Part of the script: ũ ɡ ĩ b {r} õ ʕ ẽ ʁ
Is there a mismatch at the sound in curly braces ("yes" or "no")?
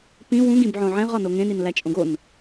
yes